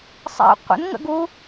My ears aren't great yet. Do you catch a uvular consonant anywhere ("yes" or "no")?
yes